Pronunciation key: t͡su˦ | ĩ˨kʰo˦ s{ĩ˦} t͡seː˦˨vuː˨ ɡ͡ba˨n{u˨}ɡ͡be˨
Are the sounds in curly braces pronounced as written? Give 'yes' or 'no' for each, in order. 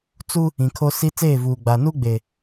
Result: no, no

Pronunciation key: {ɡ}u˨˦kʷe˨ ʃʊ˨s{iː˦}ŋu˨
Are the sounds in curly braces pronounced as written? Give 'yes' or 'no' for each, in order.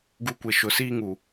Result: yes, yes

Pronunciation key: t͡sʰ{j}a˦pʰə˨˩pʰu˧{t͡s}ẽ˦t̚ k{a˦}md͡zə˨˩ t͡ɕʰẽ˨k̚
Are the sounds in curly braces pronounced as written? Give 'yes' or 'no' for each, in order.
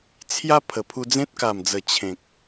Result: yes, no, no

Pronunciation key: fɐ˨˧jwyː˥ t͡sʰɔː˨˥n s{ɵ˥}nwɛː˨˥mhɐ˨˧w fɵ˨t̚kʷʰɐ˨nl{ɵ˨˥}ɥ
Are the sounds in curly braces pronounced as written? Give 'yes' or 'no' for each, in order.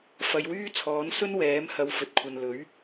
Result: yes, yes

